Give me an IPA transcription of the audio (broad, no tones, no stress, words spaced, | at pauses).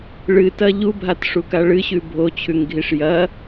ɭɨtɐ ʎubʱatʂuka ɭɨɕʉ bʱot͡ɕʰʉŋɡʱiʂ jɐ